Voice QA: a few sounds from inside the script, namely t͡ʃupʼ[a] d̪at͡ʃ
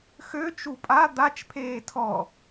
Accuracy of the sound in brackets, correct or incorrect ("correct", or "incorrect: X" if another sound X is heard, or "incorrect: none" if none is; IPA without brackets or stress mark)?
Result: correct